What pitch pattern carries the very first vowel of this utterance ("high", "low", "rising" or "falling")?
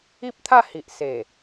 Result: high